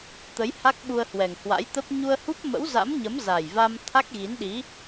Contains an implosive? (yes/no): yes